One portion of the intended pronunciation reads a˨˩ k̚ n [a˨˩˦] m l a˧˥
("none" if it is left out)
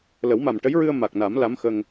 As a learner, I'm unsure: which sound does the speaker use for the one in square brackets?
a˨˩˦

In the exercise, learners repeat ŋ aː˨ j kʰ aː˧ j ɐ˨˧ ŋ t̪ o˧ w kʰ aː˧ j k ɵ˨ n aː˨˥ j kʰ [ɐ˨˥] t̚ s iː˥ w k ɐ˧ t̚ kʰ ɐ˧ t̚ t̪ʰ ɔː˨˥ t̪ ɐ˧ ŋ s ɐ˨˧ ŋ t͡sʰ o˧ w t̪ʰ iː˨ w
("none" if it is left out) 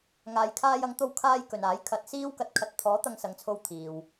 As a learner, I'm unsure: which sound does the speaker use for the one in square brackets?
ɐ˨˥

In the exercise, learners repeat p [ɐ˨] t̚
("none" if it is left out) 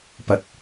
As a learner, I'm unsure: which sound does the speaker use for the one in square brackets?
ɐ˨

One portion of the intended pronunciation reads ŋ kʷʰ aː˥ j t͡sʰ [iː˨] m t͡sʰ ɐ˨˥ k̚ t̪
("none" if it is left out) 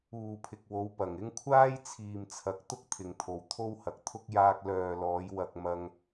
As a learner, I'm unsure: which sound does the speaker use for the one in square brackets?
iː˨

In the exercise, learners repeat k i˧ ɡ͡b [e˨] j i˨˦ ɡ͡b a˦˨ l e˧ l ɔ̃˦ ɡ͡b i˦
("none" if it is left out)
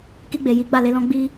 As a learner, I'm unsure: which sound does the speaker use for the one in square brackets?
e˨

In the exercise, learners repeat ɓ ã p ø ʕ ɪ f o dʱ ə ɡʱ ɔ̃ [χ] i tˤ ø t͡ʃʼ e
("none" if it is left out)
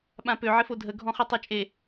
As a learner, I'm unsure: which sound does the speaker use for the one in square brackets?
χ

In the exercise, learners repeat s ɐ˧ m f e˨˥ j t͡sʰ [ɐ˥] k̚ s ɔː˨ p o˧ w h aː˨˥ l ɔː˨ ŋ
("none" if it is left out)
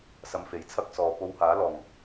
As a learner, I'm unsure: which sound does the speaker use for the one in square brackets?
ɐ˥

